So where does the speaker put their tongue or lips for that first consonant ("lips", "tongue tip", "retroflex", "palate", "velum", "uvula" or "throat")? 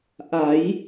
throat